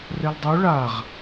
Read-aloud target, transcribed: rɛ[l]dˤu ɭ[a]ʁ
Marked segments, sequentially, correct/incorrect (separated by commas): correct, correct